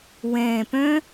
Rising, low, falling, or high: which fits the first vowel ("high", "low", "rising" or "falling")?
low